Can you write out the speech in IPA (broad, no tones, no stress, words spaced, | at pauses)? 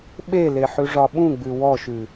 ɓele ħʉʐɒɓũɡ͡bʉ wɔʃʉ